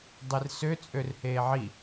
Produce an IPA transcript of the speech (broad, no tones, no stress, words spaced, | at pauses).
dˤersø t͡sʼørheːʕi